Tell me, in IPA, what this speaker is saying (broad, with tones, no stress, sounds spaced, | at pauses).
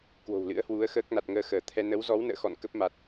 k w o̤˨˩ w l ɨ̰˧˥ ə̯ h w u˨˦ ə̯ x əː˦˥ k̚ n a˨˩ t̚ ŋ əː˧ x əː˧˩ t̪ʰ ɛ˧ n ə˨˦ w z ɔ˨˦ w n ə̰ː˧˨ x ɔ̰˧˨ n k ə˦˥ p̚ m a˨˩ t̚